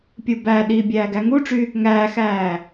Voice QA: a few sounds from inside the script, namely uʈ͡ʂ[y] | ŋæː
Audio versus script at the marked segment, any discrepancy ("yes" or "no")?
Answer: no